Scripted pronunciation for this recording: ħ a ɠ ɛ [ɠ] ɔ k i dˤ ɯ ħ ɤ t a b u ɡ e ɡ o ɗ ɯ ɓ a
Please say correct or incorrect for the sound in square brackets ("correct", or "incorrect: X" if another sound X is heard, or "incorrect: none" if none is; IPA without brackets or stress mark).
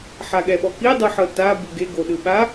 incorrect: ɓ